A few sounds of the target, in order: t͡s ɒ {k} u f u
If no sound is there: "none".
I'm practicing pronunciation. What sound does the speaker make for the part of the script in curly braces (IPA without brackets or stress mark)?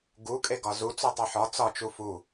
t͡ʃ